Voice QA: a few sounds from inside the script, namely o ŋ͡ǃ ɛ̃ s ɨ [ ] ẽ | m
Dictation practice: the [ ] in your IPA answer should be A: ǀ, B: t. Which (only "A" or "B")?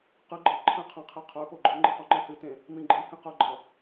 B